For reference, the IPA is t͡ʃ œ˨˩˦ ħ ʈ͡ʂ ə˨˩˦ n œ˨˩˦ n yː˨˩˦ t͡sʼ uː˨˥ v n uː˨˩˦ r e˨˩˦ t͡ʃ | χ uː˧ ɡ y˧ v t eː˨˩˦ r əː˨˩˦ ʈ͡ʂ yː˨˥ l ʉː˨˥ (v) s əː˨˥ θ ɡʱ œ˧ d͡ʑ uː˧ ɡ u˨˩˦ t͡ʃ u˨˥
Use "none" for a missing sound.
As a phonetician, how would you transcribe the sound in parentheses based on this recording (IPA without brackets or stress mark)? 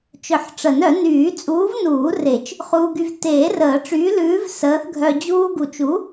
v